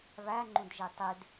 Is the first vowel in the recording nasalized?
no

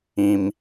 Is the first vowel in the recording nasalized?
yes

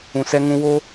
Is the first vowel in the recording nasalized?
yes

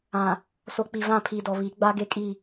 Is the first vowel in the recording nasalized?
yes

